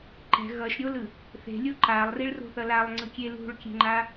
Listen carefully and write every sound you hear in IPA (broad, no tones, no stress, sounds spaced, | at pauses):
ǃ ɛ̤ ɣ ʌ ʃ ɾʲ o l ɯ | θ e̤ lʲ o ǃ a lˠ r i ɭ r o̤ θ ʌ l a lˠ ŋ͡ǀ ɯ kʲ e l ṳ ɭ kʲ e̤ ŋ͡ǃ a